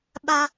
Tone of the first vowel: low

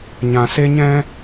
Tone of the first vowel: low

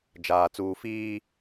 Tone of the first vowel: low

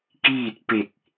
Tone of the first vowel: falling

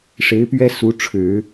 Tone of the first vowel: rising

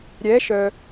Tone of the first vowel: rising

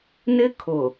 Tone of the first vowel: high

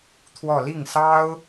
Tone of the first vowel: falling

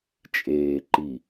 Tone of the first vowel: low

